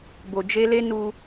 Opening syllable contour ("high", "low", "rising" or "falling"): low